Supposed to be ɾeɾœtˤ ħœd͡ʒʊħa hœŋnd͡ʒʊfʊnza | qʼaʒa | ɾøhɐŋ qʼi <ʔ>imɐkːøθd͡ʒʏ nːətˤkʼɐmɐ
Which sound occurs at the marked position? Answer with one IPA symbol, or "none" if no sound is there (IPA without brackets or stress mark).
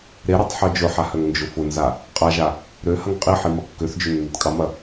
ħ